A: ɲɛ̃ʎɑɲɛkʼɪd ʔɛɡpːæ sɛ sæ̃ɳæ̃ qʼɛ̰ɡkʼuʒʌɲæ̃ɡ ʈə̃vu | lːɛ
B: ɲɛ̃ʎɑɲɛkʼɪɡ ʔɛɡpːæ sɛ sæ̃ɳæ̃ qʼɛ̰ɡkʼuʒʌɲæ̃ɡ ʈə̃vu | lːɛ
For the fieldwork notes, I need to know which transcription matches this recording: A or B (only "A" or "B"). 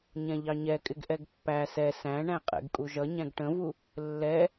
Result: B